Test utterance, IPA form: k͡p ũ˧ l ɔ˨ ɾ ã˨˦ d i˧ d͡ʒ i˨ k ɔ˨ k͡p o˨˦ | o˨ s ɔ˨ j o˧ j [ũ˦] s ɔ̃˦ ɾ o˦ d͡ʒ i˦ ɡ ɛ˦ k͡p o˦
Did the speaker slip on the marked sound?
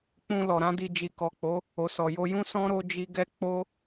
no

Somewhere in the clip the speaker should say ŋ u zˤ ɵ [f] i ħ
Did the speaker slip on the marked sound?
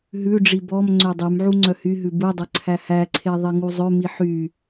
yes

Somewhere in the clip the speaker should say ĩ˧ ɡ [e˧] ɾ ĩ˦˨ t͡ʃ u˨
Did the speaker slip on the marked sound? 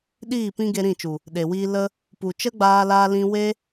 no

